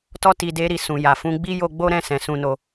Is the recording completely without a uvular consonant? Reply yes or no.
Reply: yes